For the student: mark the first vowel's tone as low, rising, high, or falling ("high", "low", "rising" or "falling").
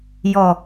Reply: falling